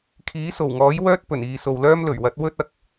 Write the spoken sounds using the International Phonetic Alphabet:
kʰ iː˨˥ s o˨˩ w ŋ ɔː˨˥ j w œː˥ t̚ p ɵ˨˩ n iː˨ s o˨ w l œː˥ m l ɵ˨˩ ɥ w ɐ˨˥ t̚ w ɵ˥ t̚ ɐ˨˥ k̚

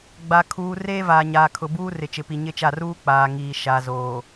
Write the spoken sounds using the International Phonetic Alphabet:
ɡ͡b a˨ kʰ uː˨ r eː˦ v aː˨ ɲ aː˨ kʰ ʊ˨ b uː˦ r ɪ˨ t͡ʃ ɪ˨ p i˨ ɲ ɪ˦ t͡ʃ a˦˨ r uː˦ k͡p aː˨ ŋ iː˨ ʃ a˨ z oː˨

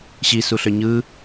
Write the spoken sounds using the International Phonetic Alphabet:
ɕ i s u ɬ ø ɲ ɯ

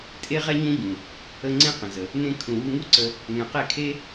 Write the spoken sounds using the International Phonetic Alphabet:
tʼ e˦ ʁ ɛ˦ ɲ ũ˦ ɟ ũ˨ | ə˧ ŋ͡ǀ ẽ˦ q ə̃˨ z ə˨ | n ẽ˧ kʰ ũ˨ w u˧ ŋ u˦ ǀ ə˧ | ŋ ɛ̃˨ q e˦˨ kʰ e˦

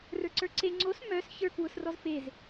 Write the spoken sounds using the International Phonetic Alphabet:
r ə˞ ǀ ə˞ ǀ e ŋ͡ǀ o s m œ s ç ə˞ k w ʊ s r ɔ z f e z

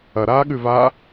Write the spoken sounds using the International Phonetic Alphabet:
ɐ ɾ aː ɠ ʉ v aː

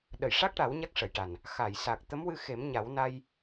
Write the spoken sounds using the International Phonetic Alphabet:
ɗ ə˨˩˨ j ʂ a˦˥ k̚ ʈ a˨˩˦ w ɲ a˦˥ k̚ ʂ ə˨˩˨ j ʈ a˨˩ n | x a˨˩˨ j s a˨˩ k̚ t̪ ə˧˥ m w ɨ˧ x e˨˩˦ m ɲ a˨˩˦ w n a˧ j

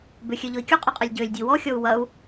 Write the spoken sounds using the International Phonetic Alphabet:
b ʏ xʲ ø ʎ ʊ i̯ kʲ u qʼ ʏ qʼ ɐ lʲ ɟ ø lʲ dʲ u w ɔ xʲ ɔ u̯ w ɐ u̯

